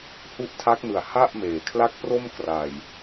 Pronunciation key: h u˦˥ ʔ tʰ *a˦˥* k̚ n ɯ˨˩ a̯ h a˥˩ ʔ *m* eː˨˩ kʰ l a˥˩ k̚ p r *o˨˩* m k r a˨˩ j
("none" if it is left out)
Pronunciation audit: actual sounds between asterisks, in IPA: a˦˥, m, o˥˩

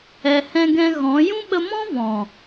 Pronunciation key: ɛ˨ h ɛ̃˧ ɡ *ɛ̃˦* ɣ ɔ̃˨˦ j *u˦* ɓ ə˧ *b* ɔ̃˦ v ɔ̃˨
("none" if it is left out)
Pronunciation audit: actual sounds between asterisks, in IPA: ɛ̃˧, ũ˦, m

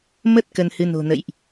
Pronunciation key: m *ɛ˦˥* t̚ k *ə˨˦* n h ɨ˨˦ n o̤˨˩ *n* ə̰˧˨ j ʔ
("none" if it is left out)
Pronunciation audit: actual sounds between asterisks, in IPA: ə˦˥, ə˧, n

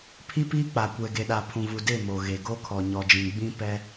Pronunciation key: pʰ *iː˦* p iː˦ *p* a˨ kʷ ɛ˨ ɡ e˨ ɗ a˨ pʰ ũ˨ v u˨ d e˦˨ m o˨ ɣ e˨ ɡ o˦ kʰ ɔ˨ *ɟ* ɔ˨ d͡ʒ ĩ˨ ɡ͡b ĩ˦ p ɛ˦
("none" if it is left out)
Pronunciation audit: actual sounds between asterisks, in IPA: i˦, k͡p, ɲ

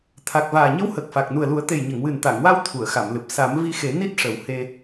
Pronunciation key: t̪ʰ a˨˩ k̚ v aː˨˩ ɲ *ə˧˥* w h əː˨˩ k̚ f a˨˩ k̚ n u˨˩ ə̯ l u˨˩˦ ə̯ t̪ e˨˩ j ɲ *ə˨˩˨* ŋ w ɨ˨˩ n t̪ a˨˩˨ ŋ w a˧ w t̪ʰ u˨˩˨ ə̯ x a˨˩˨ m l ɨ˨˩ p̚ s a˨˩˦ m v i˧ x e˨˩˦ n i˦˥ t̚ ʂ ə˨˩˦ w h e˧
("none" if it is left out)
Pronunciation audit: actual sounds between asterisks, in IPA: ə˧˥, ə˨˩˨

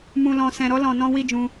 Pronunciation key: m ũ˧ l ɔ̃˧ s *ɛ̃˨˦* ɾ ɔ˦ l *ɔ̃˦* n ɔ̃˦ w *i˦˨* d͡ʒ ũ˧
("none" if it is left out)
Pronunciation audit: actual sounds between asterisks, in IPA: ɛ̃˧, ɔ̃˧, i˦˨

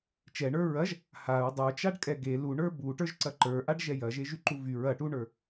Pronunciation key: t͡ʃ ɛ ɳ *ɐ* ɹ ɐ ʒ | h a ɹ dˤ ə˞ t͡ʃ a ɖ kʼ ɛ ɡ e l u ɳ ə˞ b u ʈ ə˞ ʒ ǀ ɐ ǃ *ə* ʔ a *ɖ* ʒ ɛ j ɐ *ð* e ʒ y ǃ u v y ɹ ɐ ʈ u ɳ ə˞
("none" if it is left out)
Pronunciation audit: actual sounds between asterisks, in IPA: ə˞, ə˞, ɖ, ʒ

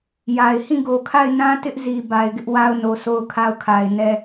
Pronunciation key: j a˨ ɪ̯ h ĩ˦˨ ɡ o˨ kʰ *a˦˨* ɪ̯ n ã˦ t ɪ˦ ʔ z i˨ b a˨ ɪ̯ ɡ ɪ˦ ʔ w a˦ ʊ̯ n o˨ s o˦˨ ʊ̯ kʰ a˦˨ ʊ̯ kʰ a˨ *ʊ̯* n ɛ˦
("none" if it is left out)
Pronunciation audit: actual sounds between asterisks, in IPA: a˦˨, ɪ̯

